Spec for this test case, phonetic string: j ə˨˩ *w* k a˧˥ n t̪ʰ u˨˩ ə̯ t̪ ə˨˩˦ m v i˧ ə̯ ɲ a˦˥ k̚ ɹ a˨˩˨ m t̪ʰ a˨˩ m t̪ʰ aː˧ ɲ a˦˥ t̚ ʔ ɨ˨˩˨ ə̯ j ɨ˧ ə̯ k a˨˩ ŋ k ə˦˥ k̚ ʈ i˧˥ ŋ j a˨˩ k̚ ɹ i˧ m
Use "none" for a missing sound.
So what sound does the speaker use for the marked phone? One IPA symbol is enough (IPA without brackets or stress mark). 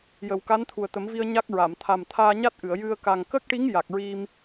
w